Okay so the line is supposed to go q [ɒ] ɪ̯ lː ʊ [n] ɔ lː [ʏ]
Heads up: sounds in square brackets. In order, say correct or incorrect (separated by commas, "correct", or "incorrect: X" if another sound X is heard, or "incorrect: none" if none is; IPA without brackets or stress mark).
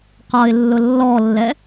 correct, incorrect: lː, incorrect: ɛ